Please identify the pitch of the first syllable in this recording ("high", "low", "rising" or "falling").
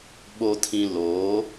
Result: low